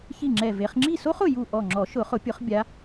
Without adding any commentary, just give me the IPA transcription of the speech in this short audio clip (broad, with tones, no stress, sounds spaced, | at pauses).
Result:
ç i˥˩ ŋ͡ǁ ɛ˧˩ v e˨˦ χ ŋ͡ǁ i˥˩ s o˥ χ ʊ˧˩ j u˧˩ ʔ ɔ˧˩ ŋ͡ǁ ɔ˨˩˦ ʃ ʊ˨˩˦ χ ʊ˨˩˦ pʲ ʊ˨˩˦ χ bʲ a˨˦